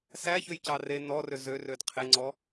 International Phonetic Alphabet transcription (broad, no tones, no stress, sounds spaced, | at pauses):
s æ ç ø j c ɑ r e n ɔ r ø z ø r ø d qʰ e ŋ͡ǀ ɔ